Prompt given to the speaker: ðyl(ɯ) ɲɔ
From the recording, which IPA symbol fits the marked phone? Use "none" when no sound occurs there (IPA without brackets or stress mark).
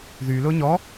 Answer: ʊ